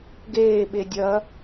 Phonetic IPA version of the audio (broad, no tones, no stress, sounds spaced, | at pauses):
ɡ eː ɓ e dʲ ɐ